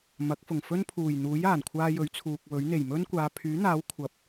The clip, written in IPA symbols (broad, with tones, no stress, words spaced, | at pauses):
mɐ˨˥k̚fʊ˨˩ŋfɵ˥n pʰuː˨˩jn̪uː˨˥j aː˨˩nkʷʰaː˧ jɵ˨˥ɥt͡sʰuː˨k̚wɵ˨˥ɥn̪e˨˩j mɵ˥nkʷaː˨˧ pʰyː˨˥n̪aː˨˥w kʷʰɐ˨˥p̚